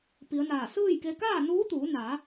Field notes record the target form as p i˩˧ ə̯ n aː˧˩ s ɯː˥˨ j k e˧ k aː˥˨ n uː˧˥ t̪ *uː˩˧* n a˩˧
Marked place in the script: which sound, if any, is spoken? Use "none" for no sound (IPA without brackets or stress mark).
uː˩˧